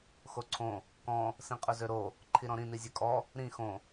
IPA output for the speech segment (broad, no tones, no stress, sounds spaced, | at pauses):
x o ǀʰ õ | k ɔ̃ | s ĩ qʼ ɵ z ø ɾ o | ǃʰ i ɾ ɔ̃ ɾ ĩ n i zʲ ø kʼ ɔ | ɾ ĩ x õ